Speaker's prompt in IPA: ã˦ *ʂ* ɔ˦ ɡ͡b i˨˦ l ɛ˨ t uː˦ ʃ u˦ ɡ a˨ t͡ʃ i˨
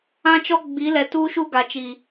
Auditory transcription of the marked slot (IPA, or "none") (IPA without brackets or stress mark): t͡ʃ